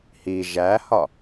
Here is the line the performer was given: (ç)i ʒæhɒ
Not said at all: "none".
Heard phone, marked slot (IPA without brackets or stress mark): h